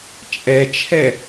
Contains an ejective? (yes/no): yes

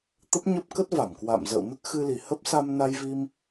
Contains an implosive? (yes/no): no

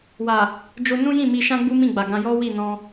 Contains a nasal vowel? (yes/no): yes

